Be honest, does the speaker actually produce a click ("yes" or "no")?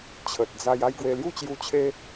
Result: no